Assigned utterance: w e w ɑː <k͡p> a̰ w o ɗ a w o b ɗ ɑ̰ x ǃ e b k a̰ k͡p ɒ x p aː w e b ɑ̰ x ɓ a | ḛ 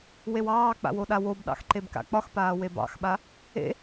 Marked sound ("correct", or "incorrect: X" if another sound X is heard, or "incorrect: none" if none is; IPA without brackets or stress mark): correct